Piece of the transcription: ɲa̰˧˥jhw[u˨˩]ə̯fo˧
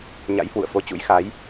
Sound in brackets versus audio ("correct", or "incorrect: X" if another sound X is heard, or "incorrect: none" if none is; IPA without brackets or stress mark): incorrect: ṵ˧˨